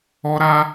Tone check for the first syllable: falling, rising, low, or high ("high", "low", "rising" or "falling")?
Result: high